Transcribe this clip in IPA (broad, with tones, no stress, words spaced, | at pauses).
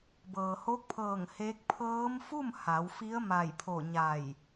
bɤː˩ho˧˥k̚pʰɤː˧˩ŋ heː˧˥k̚ pʰɤː˧˥m fu˥˨m ha˩˧wfi˧˥ə̯ ma˧˩jpʰo˧˩ɲa˧˩j